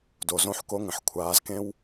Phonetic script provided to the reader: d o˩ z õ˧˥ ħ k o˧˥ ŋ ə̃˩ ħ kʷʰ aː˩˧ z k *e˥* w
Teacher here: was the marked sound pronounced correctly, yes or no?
no